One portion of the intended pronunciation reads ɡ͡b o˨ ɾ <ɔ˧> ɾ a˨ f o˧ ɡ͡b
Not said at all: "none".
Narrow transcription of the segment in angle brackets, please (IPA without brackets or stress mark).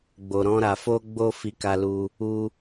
ɔ̃˧